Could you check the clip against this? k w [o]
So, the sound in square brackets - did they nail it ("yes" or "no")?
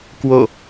yes